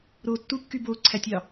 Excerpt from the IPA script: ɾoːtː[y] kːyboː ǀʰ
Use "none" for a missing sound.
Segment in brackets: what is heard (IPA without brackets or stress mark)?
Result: u